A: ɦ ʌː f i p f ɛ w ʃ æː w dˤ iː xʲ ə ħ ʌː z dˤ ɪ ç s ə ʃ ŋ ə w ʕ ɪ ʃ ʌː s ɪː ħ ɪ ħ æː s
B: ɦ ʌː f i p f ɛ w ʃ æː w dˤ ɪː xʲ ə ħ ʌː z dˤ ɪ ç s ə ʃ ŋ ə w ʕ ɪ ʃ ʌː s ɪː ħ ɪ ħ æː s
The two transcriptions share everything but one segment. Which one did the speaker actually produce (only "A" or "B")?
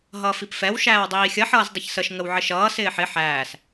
A